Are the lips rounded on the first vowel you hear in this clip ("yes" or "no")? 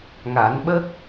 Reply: no